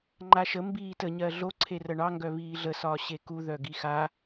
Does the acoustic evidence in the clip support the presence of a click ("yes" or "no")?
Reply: yes